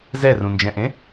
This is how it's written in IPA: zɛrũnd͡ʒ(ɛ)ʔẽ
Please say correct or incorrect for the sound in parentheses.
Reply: incorrect